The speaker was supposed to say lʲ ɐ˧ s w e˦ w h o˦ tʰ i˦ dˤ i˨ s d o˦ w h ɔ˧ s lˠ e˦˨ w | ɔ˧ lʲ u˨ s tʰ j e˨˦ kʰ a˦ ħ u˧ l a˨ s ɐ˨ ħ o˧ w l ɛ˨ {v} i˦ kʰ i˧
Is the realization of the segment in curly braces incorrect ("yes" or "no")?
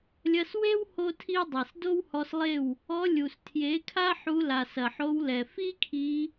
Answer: yes